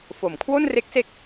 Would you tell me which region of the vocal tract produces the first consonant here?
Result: lips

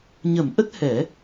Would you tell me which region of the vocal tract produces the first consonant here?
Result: palate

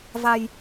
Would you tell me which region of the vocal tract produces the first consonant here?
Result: lips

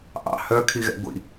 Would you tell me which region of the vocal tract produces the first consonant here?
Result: throat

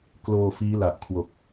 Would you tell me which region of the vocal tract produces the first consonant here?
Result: velum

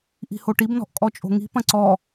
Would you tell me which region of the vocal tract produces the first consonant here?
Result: throat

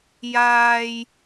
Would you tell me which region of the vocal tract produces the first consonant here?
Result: palate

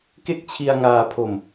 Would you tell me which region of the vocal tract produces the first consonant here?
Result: velum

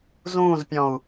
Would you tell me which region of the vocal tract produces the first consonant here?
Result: tongue tip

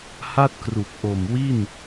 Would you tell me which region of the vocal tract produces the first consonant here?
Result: throat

